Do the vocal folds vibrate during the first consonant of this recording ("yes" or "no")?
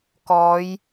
no